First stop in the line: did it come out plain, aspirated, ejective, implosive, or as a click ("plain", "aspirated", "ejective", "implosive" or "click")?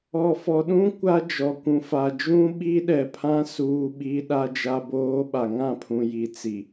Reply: implosive